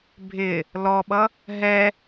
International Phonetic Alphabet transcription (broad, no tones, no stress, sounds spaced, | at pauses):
bʱ ɪ | l ɔ ɓ ʌ | ɦ ɛ